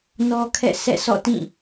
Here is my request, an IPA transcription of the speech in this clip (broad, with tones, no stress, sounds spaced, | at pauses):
n ɔ˦ kʰ ɛ̰˦˨ s ɛ̰˦˨ s ɔ̰˦˨ t ĩ˦˨